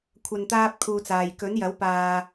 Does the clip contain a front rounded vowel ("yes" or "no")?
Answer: no